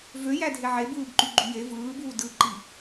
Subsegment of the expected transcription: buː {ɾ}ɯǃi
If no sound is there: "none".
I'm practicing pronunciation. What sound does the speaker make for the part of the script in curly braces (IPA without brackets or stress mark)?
d